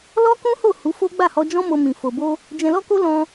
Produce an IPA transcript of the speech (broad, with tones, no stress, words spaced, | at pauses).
lɔ˦kũ˦ho˦˨ hu˨˦fo˦ ɡ͡ba˦˨hɔ˧d͡ʒɔ̃˦ mo˧mĩ˨ fo˨bo˧ | d͡ʒɛ̃˧lɔ˦ko˦ lɔ̃˧